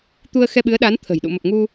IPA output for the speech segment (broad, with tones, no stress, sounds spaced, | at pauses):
t̪ u˧ ə̯ x ɛ˧ ɓ ɨ˨˦ ə̯ ɗ a˨˦ n t̪ʰ ə̤˨˩ j ɗ ṵ˧˨ m ə˨˩ p̚ ŋ u˧